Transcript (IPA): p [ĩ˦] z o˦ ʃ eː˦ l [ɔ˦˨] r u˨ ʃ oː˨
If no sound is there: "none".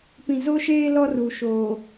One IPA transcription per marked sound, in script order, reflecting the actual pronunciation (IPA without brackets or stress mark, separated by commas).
ĩ˨, ɔ˦